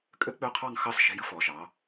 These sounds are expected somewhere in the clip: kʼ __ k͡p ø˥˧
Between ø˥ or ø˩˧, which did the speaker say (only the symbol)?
ø˥